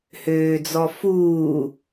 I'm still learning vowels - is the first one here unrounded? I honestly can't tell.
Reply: no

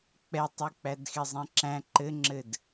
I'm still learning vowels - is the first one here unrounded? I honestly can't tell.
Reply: yes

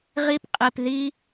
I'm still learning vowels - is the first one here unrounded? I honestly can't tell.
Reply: yes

